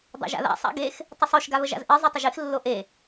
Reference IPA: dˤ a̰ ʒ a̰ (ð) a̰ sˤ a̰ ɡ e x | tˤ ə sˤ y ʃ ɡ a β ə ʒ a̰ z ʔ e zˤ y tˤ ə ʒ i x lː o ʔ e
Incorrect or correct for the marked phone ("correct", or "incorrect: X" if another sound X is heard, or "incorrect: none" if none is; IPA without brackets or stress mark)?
correct